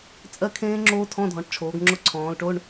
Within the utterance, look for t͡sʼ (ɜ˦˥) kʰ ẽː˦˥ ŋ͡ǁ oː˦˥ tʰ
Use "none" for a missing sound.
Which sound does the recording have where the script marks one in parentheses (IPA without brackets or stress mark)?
ɜ˦˥